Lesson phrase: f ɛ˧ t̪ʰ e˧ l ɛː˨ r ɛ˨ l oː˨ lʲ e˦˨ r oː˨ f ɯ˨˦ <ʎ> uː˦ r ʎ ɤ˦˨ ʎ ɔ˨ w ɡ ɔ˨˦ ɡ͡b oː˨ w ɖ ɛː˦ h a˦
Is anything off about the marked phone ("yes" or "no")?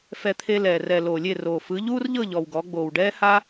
no